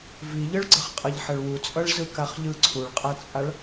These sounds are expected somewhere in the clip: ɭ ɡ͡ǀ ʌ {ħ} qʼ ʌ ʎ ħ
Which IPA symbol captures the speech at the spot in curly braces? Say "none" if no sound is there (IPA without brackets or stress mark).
χ